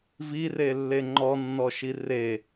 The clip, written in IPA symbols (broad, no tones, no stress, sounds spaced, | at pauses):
v i r e lː e ŋ͡ǃ ɔ nː ɔ ʃ i r e